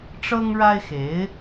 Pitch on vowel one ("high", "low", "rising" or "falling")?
high